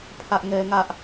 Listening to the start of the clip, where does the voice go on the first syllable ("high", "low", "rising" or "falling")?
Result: high